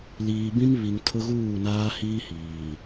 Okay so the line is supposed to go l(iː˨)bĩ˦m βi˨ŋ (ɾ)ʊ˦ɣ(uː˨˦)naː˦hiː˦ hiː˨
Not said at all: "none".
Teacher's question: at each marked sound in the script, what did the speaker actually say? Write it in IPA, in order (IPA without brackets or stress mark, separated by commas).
iː˨, tʰ, uː˦˨